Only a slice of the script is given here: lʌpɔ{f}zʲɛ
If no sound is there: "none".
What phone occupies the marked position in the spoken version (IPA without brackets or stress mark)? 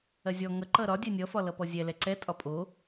none